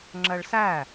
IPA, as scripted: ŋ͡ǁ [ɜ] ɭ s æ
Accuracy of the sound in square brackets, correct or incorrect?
correct